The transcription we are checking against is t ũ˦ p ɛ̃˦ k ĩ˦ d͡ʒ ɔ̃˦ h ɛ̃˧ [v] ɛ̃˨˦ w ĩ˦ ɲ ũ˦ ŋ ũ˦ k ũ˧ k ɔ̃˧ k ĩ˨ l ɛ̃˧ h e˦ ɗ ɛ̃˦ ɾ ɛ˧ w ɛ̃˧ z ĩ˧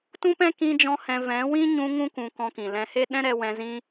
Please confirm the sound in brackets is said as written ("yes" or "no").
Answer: yes